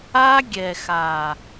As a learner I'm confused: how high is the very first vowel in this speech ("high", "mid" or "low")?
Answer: low